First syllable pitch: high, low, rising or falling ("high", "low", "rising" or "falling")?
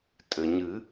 low